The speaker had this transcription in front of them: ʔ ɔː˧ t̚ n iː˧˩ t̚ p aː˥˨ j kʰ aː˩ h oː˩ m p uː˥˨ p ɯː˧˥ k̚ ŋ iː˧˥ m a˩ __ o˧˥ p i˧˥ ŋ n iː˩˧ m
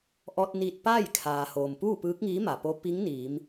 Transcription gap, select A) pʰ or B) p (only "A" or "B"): B